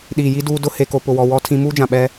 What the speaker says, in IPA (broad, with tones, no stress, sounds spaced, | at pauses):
ɗ iː˨ j i˦ d uː˦ d ʊ˦ h e˨ k o˨ p ʊ˨ w ɔ˨ w ɔ˦ tʰ ĩ˦ m uː˦ d͡ʒ ã˨ ɓ ɛ˦